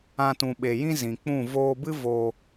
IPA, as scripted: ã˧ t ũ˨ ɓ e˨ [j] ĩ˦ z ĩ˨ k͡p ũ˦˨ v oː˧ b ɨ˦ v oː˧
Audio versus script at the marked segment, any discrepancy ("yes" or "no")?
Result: no